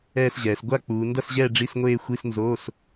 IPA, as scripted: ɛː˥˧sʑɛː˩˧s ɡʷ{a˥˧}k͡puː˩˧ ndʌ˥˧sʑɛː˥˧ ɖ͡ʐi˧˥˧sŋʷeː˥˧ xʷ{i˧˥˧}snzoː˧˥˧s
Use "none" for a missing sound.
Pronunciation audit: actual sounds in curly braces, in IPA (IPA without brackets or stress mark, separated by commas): a˥˧, i˧˥˧